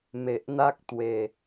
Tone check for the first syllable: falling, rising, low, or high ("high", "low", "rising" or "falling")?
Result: low